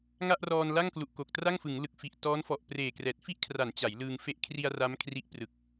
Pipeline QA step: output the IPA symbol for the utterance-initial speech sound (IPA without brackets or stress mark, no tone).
ŋ